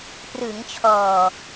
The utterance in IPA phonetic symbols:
prɯː˩˦ŋt͡ɕʰɔː˨˩

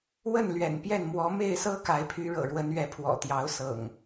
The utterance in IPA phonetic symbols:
wə˥˨nlɥɛ̰˨˩n pjɛ˥˨n mwɔ˨˦ me˥˨ɪ̯sɤ˦ka˨˦ɪ̯pʰy˨˦ ɻɤ̰˨˩ɻwə˨˦n ɥɛ˨˦pʰwɔ̰˨˩t̪jɑ˨˦ʊ̯sɤ̰˨˩ŋ

